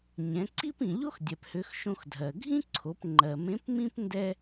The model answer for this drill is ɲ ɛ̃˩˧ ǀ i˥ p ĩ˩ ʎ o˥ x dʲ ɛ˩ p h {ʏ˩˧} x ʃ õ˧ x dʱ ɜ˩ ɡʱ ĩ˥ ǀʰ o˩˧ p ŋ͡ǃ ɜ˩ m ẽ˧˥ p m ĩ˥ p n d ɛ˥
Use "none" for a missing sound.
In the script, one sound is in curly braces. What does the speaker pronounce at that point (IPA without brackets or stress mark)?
ʏ˩˧